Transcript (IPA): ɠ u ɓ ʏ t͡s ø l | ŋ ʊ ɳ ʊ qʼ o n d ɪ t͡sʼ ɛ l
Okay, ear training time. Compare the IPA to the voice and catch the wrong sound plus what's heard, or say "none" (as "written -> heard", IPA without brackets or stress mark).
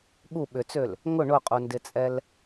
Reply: o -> u